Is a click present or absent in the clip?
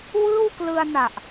absent